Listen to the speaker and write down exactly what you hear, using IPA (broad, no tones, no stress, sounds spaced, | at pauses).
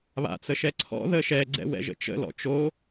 β a̰ t͡s ə ʃ ɛ ǀʰ ɔ̰ ð ə ʃ ɛ ɡ͡ǀ ɛ̰ w ɛ̰ ʒ ə̰ t͡ʃ ə̰ l ɔ̰ t͡ʃ o